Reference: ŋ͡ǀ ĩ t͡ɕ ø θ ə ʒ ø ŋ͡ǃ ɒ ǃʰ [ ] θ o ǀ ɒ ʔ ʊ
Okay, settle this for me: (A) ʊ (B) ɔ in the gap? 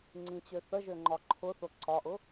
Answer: A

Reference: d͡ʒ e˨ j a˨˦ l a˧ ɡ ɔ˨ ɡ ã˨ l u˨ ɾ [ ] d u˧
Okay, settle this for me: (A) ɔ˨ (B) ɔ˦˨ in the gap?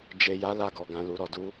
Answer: A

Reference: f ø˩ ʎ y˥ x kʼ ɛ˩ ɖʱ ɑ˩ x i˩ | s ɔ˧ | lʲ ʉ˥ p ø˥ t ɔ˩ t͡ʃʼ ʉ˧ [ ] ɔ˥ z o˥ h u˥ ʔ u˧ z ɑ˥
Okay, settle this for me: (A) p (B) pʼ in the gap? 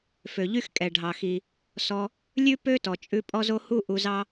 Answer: B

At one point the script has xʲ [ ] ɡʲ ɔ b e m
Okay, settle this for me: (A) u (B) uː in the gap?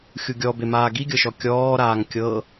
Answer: A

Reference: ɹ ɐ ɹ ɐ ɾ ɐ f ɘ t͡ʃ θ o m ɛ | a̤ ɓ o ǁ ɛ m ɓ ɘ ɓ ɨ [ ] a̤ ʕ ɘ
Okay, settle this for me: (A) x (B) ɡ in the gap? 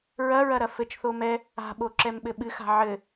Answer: A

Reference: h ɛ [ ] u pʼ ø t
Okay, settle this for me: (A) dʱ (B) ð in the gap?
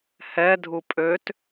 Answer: A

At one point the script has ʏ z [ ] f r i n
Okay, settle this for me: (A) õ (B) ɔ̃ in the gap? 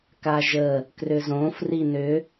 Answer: A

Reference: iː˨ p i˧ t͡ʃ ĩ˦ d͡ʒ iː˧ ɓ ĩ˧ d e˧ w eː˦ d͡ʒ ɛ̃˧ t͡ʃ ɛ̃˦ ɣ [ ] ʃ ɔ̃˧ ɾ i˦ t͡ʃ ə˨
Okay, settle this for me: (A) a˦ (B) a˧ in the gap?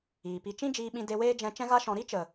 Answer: A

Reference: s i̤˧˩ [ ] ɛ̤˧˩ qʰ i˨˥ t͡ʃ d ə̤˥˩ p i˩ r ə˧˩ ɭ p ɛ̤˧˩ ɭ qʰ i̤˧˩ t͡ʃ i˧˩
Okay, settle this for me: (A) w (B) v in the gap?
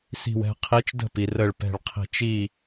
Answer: A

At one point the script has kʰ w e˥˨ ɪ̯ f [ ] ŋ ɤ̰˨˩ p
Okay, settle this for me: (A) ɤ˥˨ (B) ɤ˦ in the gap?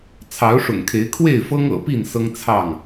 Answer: B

